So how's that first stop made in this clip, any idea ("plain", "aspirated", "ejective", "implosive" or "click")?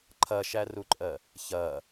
click